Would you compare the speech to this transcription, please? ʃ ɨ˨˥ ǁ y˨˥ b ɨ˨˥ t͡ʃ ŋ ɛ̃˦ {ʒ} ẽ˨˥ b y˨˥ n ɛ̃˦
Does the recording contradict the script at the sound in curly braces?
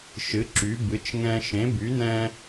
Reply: yes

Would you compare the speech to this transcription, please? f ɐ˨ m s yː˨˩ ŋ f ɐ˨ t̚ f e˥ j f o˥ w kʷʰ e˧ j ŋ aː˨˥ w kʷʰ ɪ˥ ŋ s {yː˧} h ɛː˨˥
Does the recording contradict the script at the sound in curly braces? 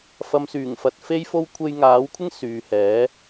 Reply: yes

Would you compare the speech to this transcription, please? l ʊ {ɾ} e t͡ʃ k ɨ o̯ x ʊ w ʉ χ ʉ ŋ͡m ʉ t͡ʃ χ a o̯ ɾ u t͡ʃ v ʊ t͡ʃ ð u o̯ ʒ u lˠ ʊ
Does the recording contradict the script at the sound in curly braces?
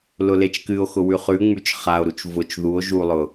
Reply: yes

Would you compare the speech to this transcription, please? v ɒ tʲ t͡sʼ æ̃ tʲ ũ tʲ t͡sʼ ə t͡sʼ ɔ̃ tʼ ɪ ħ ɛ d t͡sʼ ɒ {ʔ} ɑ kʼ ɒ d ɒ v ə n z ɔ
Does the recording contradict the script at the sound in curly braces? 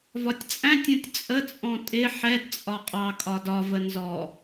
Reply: yes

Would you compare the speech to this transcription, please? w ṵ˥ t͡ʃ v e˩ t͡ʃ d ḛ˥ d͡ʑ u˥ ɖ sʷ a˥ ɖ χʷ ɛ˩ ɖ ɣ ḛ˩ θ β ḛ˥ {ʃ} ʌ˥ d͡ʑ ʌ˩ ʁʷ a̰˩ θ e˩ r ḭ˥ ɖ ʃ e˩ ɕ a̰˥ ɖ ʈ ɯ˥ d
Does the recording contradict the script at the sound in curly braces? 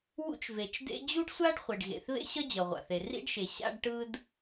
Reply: yes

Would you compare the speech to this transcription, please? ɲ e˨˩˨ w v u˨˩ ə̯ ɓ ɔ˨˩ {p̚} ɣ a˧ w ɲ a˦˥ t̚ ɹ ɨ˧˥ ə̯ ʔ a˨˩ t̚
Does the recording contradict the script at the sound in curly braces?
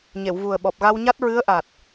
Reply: no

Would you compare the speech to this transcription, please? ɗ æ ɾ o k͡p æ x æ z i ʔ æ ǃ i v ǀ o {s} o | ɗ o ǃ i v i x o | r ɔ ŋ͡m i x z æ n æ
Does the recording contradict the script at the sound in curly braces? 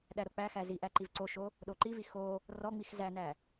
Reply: yes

